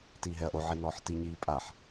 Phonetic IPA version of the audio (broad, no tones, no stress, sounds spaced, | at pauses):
t iː ɦ ɛ ɐ̯ ʔ o ʕ i n ɔː ħ t i ɲ iː pʼ a ħ